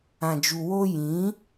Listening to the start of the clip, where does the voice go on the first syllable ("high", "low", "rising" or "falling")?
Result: low